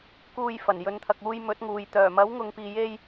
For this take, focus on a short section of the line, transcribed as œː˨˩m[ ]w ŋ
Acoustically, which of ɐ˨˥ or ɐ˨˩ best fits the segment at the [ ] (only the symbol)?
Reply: ɐ˨˥